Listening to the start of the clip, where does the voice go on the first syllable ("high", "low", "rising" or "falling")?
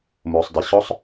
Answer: low